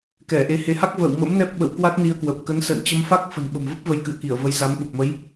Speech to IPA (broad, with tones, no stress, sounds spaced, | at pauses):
k ɛ˧˩ ʔ e˨˦ h e˨˦ h a˦˥ k̚ v ə̰ː˧˨ w m ə̰˧˥ m n ɛ˦˥ p̚ ɓ ə̰˧˨ w k w a˦˥ t̚ n i˧ ə̯ k w ə˨˩ p̚ k ə˨˦ n s ə̰ː˧˨ n t͡ɕ ə˧ m f a˦˥ k̚ f ə̤˨˩ n ɓ ə̤˨˩ m v ə˦˥ p̚ v ə˧ j k ɨ̰˧˨ ə̯ k i˧˩ ə̯ v ə˨˦ j z a˨˦ m ɓ u˨˩ p̚ m ə˨˦ j